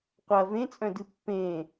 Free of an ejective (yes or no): no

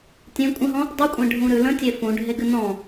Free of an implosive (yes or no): yes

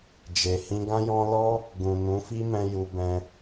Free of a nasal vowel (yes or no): no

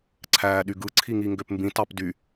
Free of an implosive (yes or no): no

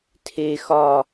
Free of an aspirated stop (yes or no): no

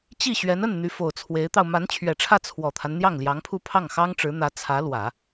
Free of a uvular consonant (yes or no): yes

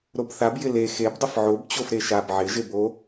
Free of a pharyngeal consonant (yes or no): no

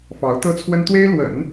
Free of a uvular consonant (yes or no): yes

